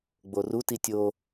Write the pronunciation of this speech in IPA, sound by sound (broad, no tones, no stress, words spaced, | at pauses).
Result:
ɡ͡boruti tʲo